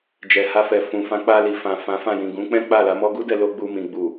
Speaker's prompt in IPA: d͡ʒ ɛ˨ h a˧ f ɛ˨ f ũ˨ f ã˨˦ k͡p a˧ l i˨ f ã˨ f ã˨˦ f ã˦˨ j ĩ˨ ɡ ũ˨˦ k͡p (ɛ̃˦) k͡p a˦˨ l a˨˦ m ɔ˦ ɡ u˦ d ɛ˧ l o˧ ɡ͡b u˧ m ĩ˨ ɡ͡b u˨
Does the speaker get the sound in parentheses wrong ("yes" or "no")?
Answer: no